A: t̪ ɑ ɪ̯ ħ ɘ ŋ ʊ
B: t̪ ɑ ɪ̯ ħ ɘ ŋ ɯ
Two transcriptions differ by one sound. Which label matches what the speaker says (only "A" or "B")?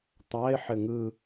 B